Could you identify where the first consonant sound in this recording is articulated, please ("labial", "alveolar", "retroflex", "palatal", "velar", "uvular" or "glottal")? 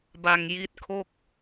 labial